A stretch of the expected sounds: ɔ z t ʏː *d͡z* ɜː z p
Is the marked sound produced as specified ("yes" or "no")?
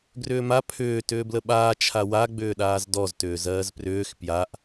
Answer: no